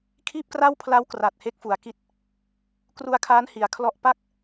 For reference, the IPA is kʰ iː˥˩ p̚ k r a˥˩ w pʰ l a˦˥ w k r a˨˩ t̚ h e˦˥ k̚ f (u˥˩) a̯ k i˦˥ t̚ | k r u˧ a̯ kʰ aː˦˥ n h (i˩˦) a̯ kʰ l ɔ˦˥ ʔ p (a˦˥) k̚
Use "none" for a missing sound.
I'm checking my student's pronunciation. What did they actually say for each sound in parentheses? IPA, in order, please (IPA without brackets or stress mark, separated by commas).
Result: u˩˦, i˩˦, a˥˩